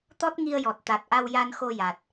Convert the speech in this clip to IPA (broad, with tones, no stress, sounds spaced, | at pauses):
t̪ ɔ˦˥ t̚ ŋ i˧ ə̯ j ɔ˨˩ t̚ t̪ a˨˩ t̚ ʔ a˧ w j a˧ n x o˧ j a˨˩ t̚